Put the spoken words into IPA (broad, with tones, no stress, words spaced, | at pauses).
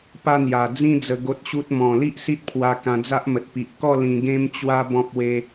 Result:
pa˦n̪ja˨˩ d͡zĩ˦ d͡zə˧ ɡo˦t̚ɕu˦t̚ mɔ̃˨˩li˦ʔ si˦t̚pʰwa˧kã˧d͡za˦ʔ mə˨t̚pi˨ʔkɔ˥˧ lĩ˧ɡẽ˦m t͡ɕwa˦ bɔ̃˦p̚we˦